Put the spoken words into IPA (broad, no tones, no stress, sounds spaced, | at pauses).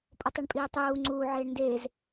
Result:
pʼ o tˤ i ɳ pʼ iː tˤ uː ŋ͡ǀ uː ʕ eː ɳ n d eː z